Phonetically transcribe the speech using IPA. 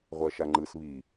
ʁʷ ɜ ʃ a ŋ͡ǃ ɯ s β i

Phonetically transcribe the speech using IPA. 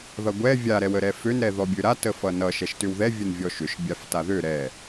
ð ʌ ɡʷ ɛ vʲ a ɾ ɛ w ə ɾ ɛ f ø n ɾ ɛ ð ɔ bʲ ø ɾ a t ə f ʌ n ʌ ʃ ɛ ʃ t ʏ w ð ɛ vʲ ə n vʲ ɔ ʃ ʏ ʃ bʲ a f t a ð ø ɾ ɛ

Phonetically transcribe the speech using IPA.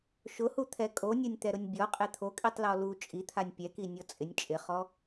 ʃ ʊ h u t̪ʰ ɛ kʼ o nʲ o nʲ t̪ ɛ ɾ ʊ nʲ bʲ ɔ qʼ e t̪ʰ o kʼ i tˤ l ɔ l u t͡ʃʼ i t̪ʰ a nʲ pʲ ɛ k i nʲ ɔ t͡sʼ ɪ nʲ t͡ʃʼ ɪ χ ɔ

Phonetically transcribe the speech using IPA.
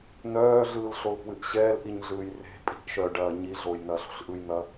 n œː ɮ ɯː l ɬ o l p w ɨ ʔ ɕ ɛː l ʔ i ɲ ɮ ɯː j r e̤ pʼ i̤ ʔ ʃ œ ɖ ɐː ɲ i ɮ oː j n ɐː ɬ o̤ ɬ ʔ ɯ j n̪ ɐ

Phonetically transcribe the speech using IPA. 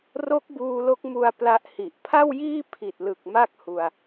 r o˦˥ k̚ b uː˧ l o˦˥ k̚ m u˧ a̯ p l a˦˥ ʔ h i˨˩ ʔ pʰ a˥˩ w j iː˥˩ pʰ i˨˩ t̚ l ɯ˨˩ k̚ m a˥˩ k̚ h u˧ a̯

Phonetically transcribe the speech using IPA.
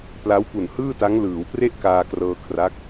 p l a˦˥ w p u˨˩ n h ɯː˥˩ t a˦˥ ŋ l ɯː˩˦ w p r e˥˩ ʔ k aː˧ k r ɤː˧ kʰ r a˦˥ k̚

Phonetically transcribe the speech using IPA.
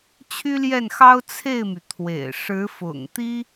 t͡ɕʰ y˥ l j ɛ˥˩ n x ɑ˥ ʊ̯ t͡sʰ e˥˩ ɪ̯ m y˩ t̪ʰ w ḛ˨˩ ɪ̯ ʂ ɻ̩˧˥ f ʊ̰˨˩ ŋ t̪ i˥

